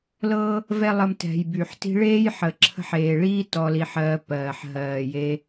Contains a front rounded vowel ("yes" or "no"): yes